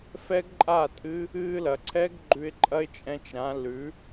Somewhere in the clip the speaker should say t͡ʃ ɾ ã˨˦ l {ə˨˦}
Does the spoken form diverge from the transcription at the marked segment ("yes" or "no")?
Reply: yes